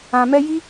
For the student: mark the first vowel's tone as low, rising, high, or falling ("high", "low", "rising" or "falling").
low